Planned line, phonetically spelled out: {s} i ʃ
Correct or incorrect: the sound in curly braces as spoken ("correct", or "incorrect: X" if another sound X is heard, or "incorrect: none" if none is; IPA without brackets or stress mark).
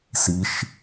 correct